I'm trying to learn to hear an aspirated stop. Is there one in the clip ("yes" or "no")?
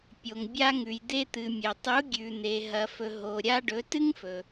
no